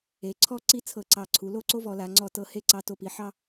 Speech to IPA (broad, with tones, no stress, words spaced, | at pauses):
e˩˧ǀʰɔ˥˧ ǀi˥t͡sʰɤ˧˩ǀɑ˧˩ǀʰu˩˧ lo˥˧ǀo˥vɔ˩˧la˩˧ ŋ͡ǀɔ˧˩tɤ˧˩ he˥˧ǀɑ˧ to˧˩pi˩˧ ħɑ˧